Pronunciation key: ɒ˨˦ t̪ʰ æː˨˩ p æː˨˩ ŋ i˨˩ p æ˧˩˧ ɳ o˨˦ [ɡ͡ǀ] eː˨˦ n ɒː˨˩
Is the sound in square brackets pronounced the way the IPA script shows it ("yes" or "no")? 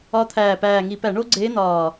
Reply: yes